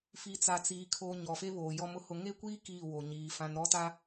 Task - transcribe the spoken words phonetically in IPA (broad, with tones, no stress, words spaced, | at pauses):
fi˨t͡sa˨t͡siː˨ kʰo˨ ɲɔ˨fe˦βoː˨ jɔ˨mʊ˦hʊ˨ ŋe˦kʷiː˦ kiː˦˨wo˨ɲiː˨ fã˨nɾɔ˦ta˦